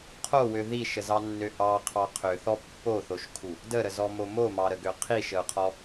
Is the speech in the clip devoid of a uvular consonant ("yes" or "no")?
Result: no